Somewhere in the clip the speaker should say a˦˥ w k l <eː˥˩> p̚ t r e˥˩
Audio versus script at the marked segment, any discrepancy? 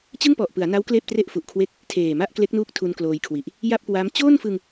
no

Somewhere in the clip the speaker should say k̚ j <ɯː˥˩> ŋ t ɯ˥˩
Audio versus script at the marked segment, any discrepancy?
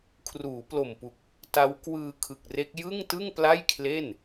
yes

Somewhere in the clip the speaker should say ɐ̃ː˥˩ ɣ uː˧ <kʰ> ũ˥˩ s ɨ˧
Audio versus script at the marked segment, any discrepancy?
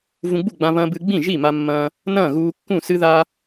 yes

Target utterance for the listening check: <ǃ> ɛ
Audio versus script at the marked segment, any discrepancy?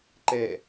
no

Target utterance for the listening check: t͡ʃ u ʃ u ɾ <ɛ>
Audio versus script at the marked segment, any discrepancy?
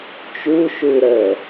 yes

